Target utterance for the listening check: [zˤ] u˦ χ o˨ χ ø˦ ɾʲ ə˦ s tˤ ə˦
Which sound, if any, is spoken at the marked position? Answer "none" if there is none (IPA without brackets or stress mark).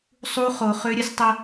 sˤ